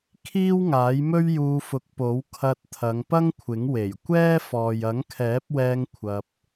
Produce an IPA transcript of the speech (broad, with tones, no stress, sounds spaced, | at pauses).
kʰ iː˥ w ŋ aː˨˥ j m ɵ˥ ɥ j uː˧ f ʊ˨˥ k̚ p o˨˥ w kʰ ɐ˧ t̚ t̪ʰ ɐ˨˧ ŋ p ɐ˥ ŋ kʷʰ ɪ˨˥ ŋ w e˨˩ j kʷ ɛː˥ f ɔː˨ j ɐ˨˥ ŋ kʰ ɛː˨˥ p̚ w ɛː˧ ŋ kʷʰ ɐ˧ p̚